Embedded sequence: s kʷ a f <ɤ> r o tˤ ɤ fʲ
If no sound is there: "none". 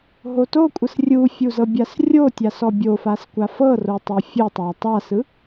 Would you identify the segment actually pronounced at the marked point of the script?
ɤ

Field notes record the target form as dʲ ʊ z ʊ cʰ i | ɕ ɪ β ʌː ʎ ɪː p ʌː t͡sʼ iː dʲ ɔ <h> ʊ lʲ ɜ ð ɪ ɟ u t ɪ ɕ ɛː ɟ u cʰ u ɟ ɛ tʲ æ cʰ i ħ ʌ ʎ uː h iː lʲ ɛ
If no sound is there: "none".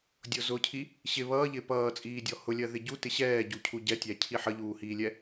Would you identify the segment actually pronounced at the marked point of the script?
h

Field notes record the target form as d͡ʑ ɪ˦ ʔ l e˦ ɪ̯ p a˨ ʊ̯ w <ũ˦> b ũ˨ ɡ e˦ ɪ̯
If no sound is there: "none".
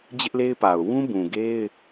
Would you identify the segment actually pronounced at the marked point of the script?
ũ˦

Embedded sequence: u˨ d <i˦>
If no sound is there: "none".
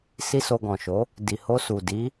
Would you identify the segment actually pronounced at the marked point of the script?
i˨˦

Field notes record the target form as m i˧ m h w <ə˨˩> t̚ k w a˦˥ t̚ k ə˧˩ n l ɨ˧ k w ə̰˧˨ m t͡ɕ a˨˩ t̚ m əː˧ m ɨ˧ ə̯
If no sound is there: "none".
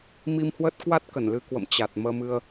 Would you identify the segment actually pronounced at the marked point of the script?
ə˦˥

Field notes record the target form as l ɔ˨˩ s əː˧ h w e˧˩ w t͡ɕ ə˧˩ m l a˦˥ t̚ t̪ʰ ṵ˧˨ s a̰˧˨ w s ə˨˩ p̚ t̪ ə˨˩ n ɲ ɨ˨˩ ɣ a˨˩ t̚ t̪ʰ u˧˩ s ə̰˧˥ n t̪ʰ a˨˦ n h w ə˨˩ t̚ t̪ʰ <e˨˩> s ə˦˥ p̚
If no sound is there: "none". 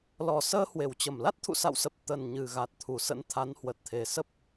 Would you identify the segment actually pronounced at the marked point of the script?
e˨˩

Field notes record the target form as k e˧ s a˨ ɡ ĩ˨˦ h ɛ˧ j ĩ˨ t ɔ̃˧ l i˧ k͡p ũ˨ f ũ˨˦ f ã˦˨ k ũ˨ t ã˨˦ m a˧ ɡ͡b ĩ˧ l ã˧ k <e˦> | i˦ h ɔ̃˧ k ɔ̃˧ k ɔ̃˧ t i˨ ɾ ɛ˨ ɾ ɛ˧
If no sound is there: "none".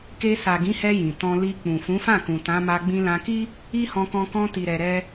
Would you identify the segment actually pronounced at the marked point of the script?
i˦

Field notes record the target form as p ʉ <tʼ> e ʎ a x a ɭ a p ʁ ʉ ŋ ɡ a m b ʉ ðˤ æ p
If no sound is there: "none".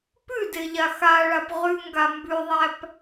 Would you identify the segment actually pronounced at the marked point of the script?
d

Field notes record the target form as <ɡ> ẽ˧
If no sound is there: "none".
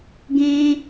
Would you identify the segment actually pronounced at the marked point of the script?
ɡ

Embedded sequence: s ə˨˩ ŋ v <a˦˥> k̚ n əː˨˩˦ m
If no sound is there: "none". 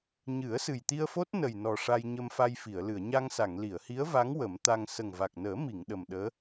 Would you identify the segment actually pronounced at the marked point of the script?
a˨˩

